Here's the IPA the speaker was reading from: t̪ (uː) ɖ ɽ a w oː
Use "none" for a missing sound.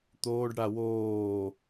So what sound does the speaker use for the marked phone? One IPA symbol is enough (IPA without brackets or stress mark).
oː